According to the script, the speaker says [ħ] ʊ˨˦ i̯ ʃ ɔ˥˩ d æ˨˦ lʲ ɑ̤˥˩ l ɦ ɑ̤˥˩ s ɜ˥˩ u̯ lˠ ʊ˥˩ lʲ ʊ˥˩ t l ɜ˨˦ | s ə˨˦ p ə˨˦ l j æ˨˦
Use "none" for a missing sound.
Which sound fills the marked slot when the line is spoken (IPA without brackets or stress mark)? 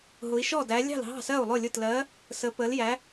ɦ